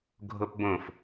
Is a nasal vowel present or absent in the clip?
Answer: present